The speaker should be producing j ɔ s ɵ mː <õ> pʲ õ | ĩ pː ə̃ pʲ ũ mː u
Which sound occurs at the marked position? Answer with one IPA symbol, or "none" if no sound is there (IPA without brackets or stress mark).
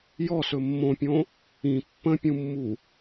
õ